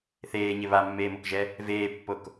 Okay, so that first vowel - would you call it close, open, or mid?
mid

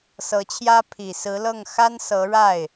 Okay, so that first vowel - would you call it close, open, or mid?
mid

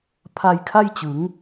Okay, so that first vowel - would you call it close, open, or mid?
open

